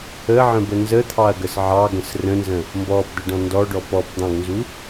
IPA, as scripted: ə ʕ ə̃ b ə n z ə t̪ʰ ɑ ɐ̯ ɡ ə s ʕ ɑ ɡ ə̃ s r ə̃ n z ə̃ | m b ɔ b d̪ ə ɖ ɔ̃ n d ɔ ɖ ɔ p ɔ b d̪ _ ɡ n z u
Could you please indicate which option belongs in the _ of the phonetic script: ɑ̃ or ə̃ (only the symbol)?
ɑ̃